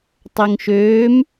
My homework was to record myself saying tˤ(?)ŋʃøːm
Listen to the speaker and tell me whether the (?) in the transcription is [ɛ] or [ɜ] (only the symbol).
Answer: ɜ